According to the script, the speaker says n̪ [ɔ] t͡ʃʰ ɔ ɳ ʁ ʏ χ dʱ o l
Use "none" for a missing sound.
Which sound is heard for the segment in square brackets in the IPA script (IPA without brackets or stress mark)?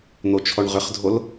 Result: o